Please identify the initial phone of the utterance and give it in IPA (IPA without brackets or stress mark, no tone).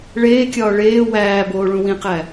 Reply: ɭ